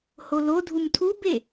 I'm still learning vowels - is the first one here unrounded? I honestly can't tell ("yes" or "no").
no